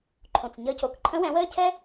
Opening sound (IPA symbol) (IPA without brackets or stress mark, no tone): ǃʰ